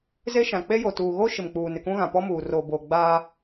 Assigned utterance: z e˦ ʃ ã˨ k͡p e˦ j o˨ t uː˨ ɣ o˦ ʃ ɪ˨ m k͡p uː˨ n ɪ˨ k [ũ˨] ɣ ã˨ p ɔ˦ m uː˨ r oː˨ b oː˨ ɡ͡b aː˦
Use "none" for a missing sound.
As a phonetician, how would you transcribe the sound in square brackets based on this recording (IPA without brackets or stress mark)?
ũ˦